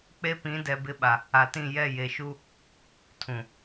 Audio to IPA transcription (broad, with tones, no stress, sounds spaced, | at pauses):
k͡p e˦ p ĩ˨˦ d ɛ˨ b ɪ˦ ɓ a˨ | a˨ t ĩ˦˨ j ɛ˦˨ j e˨ ʃ u˦ | tʰ ũ˨